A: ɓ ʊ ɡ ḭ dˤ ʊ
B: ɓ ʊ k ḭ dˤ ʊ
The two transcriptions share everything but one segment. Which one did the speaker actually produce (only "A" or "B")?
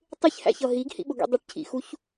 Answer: A